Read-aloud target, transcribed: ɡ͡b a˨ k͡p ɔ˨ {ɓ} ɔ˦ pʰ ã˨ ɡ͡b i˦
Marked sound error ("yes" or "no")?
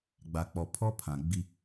yes